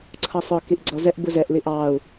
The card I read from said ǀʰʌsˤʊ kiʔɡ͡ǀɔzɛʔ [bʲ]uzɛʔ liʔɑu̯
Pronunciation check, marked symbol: incorrect: b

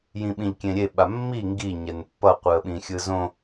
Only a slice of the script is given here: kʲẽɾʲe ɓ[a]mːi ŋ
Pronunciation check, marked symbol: correct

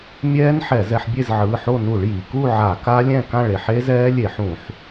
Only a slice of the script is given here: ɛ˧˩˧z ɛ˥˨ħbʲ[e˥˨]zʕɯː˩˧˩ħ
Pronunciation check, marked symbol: correct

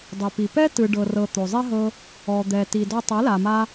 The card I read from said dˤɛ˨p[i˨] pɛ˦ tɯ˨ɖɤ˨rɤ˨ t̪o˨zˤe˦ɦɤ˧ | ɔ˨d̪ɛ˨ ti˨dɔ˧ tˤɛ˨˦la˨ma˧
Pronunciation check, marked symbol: correct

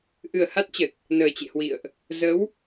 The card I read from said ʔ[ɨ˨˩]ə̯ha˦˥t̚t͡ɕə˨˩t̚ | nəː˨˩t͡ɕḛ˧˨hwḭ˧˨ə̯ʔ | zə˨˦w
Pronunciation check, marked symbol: correct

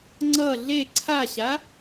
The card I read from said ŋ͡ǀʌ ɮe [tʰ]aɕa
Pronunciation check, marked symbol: incorrect: ǀʰ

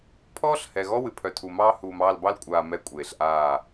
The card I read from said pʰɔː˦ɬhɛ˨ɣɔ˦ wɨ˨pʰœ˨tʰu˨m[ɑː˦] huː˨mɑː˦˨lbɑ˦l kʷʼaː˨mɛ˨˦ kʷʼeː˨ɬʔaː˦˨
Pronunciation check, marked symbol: correct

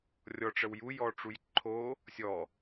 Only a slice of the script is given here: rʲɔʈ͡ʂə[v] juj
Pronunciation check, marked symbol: incorrect: w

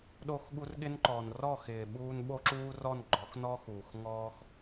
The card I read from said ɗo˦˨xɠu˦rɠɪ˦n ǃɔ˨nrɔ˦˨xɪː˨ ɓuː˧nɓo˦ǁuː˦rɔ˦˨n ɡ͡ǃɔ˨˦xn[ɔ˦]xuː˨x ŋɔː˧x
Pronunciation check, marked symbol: correct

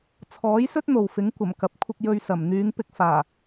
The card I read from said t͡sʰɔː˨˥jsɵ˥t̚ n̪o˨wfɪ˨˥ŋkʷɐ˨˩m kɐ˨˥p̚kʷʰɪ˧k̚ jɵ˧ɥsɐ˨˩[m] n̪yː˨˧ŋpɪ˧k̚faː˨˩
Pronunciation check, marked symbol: correct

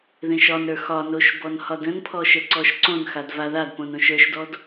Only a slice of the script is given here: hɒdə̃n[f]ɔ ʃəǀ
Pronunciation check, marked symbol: incorrect: pʰ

